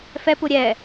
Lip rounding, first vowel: unrounded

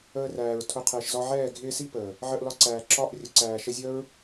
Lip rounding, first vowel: unrounded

